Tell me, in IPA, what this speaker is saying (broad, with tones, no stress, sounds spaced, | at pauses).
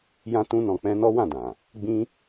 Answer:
j ã˧ t ũ˧ n ɔ̃˨ k͡p ɛ̃˧ n ɔ˦ w ã˦˨ d ã˨ | ɡ͡b ĩ˦